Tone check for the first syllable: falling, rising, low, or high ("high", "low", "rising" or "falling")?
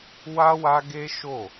high